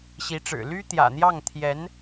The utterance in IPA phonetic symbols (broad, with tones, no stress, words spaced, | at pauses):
ɕi˧˥ʈ͡ʂɻ̩˨˩ ly˥t̪jä̰˨˩n̪jɑ˥˩ŋ t̪ʰjɛ˧˥n